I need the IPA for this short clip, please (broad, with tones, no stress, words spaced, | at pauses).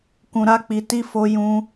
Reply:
kũ˨ɾa˧k͡pi˨ti˧ fo˧ jũ˧